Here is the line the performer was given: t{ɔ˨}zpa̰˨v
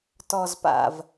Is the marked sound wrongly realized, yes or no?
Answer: no